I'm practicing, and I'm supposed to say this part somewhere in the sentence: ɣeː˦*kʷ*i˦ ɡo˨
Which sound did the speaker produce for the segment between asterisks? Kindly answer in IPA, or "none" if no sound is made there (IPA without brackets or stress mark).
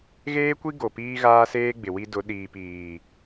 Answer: kʷ